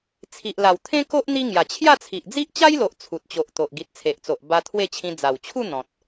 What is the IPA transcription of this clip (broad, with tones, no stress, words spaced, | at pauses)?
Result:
t͡sʰi˨ʔla˨˩wt̪ʰẽ˦ko˦ʔ n̪i˦ ŋja˨˩t͡ɕʰja˥˧t͡sʰi˨ʔ d͡zi˦ʔt͡ɕa˦jlo˨ʔ t͡sʰu˨t̚t͡ɕo˨ʔ t̪o˨ʔɡi˨t̚t͡sʰe˨ʔt͡so˨ʔ ba˧ t̪ʰwe˥˧t͡ɕʰĩ˧ d͡za˨˩wt͡ɕʰu˥˧ n̪ɔ̃˨t̚